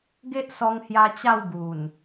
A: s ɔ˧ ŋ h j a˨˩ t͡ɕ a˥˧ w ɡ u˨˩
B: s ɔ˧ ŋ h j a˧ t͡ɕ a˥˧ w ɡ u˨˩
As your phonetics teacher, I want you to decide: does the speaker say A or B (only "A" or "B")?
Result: B